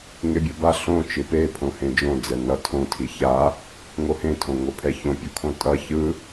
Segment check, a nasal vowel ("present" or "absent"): present